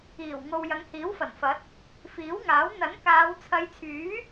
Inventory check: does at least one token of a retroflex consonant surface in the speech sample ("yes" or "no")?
no